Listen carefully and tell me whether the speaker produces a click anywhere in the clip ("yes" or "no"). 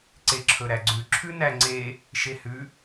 yes